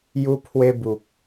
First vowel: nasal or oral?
oral